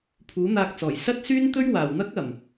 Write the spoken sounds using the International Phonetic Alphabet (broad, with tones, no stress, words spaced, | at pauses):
pʰuː˨˥n̪aː˧k̚t͡sɔː˨˩j sɐ˥t̚syː˥n t̪ɵ˥ɥwaː˨˩w n̪ɐ˥k̚ ɐ˨˩m